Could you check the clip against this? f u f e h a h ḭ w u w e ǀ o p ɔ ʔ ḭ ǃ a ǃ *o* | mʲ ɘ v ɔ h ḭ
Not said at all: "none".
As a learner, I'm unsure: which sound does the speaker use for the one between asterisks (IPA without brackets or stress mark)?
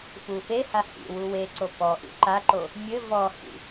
o